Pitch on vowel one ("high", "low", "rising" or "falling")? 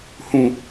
falling